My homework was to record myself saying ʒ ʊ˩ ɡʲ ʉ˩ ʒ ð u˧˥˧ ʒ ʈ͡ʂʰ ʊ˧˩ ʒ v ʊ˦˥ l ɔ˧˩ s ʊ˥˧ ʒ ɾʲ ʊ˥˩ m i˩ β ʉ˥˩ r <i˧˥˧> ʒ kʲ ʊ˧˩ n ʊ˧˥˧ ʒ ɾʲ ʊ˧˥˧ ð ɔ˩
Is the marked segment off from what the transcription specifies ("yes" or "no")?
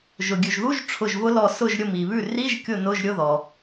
no